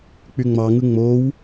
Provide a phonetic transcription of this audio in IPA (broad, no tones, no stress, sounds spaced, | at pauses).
k͡p y ŋ͡m ɑ ŋ ɯ ŋ͡m o w